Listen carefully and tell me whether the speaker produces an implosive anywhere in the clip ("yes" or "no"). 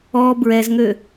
no